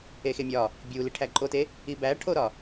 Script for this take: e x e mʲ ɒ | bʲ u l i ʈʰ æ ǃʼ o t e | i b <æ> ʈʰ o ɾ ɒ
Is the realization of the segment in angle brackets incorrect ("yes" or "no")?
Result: no